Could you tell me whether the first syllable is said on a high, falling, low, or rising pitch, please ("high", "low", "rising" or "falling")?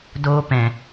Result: high